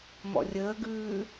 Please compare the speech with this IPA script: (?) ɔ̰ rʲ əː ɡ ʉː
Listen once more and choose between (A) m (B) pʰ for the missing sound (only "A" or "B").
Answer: A